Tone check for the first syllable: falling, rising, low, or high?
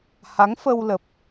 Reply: rising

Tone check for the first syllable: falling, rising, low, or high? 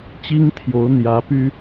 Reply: high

